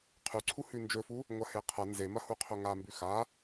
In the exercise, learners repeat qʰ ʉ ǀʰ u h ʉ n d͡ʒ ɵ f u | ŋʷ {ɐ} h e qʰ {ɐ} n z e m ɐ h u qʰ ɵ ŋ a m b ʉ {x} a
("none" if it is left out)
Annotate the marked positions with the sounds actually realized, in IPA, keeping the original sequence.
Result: ɐ, ɐ, x

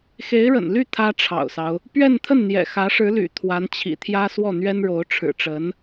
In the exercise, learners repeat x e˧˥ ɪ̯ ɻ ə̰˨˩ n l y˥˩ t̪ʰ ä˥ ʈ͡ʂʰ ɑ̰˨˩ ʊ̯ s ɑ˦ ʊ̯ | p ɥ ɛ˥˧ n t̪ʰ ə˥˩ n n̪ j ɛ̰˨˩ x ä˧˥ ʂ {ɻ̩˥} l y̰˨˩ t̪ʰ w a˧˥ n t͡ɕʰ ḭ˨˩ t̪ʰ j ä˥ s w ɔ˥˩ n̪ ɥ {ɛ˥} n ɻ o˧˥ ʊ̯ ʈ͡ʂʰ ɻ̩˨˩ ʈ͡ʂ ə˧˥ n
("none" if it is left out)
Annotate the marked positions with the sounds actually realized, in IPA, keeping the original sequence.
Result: ɻ̩˧˥, ɛ˥

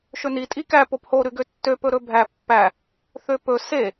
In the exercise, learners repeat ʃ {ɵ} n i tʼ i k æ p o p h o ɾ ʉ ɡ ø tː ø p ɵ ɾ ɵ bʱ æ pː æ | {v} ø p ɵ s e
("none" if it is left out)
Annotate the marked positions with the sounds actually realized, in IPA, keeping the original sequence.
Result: ɵ, θ

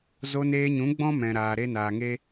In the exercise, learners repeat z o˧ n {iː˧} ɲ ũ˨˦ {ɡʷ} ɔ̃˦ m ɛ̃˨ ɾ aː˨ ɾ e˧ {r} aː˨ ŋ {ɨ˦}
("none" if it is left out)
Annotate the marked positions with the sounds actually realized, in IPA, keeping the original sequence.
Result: eː˧, ɡ͡b, n, e˦

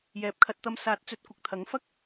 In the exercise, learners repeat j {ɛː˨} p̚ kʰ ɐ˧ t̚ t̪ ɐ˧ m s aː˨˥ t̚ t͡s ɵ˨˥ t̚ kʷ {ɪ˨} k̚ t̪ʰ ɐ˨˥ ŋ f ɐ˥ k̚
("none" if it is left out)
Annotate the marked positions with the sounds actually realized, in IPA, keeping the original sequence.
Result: ɛː˨, ɪ˨

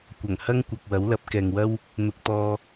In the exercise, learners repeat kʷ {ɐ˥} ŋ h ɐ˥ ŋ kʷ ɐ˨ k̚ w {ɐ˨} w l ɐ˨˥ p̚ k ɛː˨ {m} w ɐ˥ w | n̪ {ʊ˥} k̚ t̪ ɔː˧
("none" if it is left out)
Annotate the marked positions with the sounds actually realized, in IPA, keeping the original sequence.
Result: ɐ˨˩, ɐ˨˥, ŋ, ʊ˧

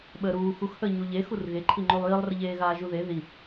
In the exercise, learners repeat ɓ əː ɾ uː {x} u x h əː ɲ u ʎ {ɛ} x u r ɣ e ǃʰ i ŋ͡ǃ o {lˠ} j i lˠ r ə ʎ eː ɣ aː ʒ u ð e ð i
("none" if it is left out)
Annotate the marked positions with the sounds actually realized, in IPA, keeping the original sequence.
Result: x, e, lˠ

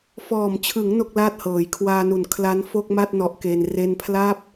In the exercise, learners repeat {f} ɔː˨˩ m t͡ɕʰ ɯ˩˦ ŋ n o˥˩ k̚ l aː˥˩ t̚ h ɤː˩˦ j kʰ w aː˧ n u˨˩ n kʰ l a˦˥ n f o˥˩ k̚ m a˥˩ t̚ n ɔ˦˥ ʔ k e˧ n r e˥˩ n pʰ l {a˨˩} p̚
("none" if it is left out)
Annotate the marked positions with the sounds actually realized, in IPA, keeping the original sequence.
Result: f, a˥˩

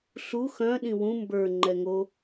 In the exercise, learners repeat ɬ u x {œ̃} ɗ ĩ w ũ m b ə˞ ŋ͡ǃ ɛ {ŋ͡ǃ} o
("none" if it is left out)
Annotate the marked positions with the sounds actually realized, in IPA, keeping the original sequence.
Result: œ̃, ŋ

